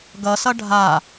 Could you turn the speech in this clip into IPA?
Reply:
ɡʌsʌ ɖʱa

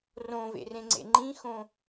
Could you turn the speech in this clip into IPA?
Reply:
rõvḛrẽŋ͡ǀḛ ŋ͡ǃĩxõ

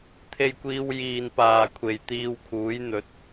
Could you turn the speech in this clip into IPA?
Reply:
t̪ʰe˧jkʷiː˧w jiː˨npaː˨ kʷʰe˨jt̪iː˧wkʰuː˨˥jn̪ɵ˨˥t̚

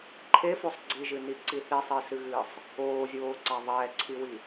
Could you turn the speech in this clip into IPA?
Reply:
ǃʰefosˤ ɡ͡ǀiʒɨniǀi θisˤesɨɣɨːsˤ | oːzʲoːǀa ðˤɛːǀʰiwi

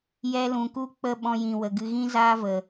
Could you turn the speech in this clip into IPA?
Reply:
jɛ˧lũ˨ku˦ k͡pə˦˨ɓɔ̃˧jĩ˨ wə˨ɡɨ˧ ɣĩ˦zaː˦və˨

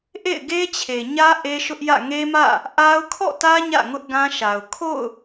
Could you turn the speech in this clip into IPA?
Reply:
ʔḛ˦˨ɪ̯ɡe˦t͡ɕʰe˨ɲä˦ ʔe˦ʃʊ˦ʔjä̰˦˨ ŋe˦mä̰˦˨ | ʔa˦ʊ̯ kʰɔ̰˦˨tä˦ ɲä̰˦˨ ŋʊ˦ʔɡã˦ʃa˨ʊ̯ kʰo̰˦˨ʊ̯

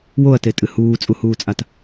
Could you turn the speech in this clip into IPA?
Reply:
woɐ̯tetʼɨ huːt͡sʼuhuːt͡sʼat

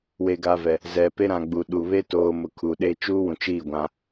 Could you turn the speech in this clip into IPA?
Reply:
weː˨ɡaː˨vɛ˨ | zɛ˨pe˦ ɾã˨ɡ͡bu˨ɗu˨ βe˦toː˨mʊ˨ kʰu˨ɗeː˦ t͡ʃuː˦wũ˨t͡ʃiː˦˨ ɡʷã˦

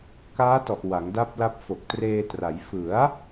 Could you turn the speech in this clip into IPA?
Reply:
kaː˦˥tɔ˨˩ʔ wa˩˦ŋda˦˥p̚la˦˥p̚ fo˨˩k̚treː˧tra˩˦j fɯ˩˦a̯

